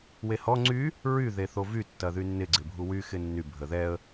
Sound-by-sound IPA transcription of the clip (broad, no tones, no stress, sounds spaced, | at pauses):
w e h ɔ ŋ͡ǀ y | ɹ y ð e θ o v y tː ɐ ð y nː ɪ ɡ͡ǀ ɪ bʱ u w y x ɪ nː y bʱ ə ð ɛ ə̯